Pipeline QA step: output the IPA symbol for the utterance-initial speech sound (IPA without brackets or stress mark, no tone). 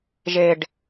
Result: ʒ